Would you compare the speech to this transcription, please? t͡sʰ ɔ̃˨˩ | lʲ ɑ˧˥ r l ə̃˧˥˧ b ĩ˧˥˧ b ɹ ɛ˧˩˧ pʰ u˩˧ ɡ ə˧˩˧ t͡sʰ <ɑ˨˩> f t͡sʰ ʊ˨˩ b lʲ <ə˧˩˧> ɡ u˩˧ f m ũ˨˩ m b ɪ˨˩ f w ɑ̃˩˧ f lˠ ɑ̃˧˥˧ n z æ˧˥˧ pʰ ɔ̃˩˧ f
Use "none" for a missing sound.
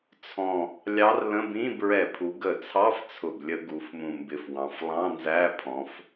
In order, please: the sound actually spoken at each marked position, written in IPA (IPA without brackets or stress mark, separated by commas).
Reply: ɑ˧˥˧, ə˧˩˧